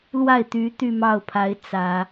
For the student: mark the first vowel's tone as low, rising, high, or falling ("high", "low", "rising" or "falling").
falling